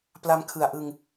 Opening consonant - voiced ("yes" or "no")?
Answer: no